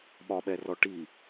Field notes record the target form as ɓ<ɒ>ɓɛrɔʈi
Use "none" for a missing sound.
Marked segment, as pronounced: ɒ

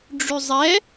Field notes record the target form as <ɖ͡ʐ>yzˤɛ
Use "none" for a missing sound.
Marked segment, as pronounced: ɖ͡ʐ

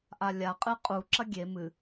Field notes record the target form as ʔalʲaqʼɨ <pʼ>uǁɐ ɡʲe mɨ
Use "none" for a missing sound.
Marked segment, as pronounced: qʼ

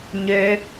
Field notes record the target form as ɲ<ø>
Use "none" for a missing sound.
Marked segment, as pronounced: ø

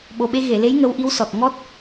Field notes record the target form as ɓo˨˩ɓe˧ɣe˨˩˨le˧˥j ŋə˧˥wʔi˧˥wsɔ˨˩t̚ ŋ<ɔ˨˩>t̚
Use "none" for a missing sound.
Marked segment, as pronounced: ɔ˦˥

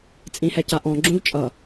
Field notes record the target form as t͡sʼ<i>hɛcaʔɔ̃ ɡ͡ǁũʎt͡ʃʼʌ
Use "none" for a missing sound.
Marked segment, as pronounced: ĩ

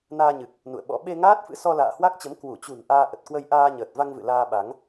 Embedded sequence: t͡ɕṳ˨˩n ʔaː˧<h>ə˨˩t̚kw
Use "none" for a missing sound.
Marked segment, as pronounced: ʔ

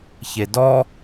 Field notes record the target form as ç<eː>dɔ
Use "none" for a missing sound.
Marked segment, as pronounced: e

